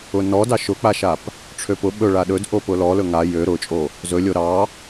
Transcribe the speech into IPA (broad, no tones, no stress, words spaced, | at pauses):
ʊnɔdɑ ʃʊk͡paʃap | ʈ͡ʂʰøpʊ ɓɵ ɭaɗɵd ʔopʊlɔlɵ ŋa jø ɾʊt͡ʃʼo | zɵlʲo ɾɑ